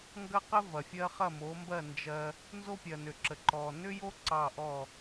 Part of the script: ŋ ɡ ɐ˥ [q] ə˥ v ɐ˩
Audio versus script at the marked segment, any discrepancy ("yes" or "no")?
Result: no